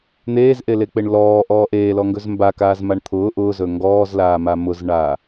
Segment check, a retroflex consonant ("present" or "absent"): present